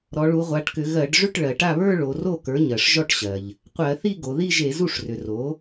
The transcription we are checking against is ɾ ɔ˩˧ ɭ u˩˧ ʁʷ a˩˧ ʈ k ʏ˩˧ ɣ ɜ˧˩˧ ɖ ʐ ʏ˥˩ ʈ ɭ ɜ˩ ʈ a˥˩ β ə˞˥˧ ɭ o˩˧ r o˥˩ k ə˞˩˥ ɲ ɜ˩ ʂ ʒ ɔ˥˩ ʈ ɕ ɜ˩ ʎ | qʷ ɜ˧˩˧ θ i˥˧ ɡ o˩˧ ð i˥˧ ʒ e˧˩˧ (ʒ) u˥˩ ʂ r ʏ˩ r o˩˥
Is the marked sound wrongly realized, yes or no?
yes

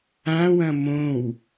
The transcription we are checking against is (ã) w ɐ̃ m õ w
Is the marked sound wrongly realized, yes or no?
no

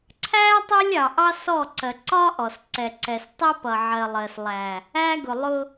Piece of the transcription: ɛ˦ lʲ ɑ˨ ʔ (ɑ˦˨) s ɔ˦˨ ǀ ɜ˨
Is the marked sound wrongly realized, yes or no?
yes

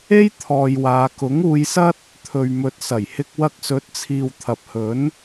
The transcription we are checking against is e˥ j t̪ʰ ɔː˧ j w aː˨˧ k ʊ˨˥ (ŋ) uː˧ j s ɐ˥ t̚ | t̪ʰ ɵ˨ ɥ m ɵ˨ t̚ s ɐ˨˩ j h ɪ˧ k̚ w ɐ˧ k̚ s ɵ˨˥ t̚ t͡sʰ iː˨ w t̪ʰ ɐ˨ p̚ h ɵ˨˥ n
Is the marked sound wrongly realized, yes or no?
no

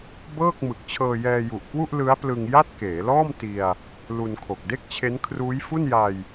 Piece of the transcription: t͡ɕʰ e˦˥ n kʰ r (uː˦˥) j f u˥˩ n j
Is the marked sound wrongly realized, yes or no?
no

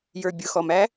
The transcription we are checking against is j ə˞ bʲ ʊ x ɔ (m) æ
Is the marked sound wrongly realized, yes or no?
no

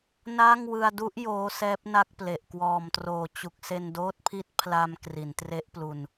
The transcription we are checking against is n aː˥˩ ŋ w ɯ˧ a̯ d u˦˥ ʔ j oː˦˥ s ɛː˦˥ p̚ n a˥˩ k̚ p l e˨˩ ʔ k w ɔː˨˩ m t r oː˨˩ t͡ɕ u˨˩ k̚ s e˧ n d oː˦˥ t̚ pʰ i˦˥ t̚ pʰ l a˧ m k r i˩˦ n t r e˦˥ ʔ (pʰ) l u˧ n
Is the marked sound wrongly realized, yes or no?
yes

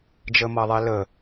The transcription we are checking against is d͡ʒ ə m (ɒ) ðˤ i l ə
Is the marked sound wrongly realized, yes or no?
yes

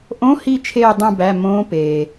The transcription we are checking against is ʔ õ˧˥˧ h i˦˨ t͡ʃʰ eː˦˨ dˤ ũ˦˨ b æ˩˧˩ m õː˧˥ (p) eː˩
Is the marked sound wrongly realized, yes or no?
no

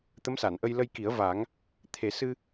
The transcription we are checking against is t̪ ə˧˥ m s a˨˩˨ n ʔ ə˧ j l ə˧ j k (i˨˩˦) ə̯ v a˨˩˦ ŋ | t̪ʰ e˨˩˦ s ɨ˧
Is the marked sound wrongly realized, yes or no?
no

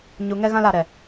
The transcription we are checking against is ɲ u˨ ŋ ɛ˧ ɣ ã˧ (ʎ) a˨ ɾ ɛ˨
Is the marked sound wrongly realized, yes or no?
yes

